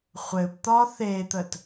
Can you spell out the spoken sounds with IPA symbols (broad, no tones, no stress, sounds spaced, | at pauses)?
χʷ ɘ b t̪ ɒ θ e t̪ ə t